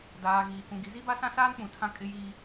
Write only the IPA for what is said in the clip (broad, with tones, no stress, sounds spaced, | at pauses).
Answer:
d aː˨ ɣ iː˨ k ũ˨ ɡ i˨˦ z i˦ b a˦ s ã˦ s aː˦ n k͡p ũ˨ tʰ ã˦ kʼ ɪ˦ j iː˦